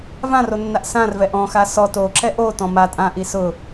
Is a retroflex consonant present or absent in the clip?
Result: absent